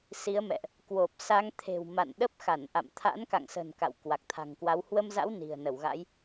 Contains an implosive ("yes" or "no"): yes